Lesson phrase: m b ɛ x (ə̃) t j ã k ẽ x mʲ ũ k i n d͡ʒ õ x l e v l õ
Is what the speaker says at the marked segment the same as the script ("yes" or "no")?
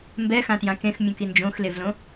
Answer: no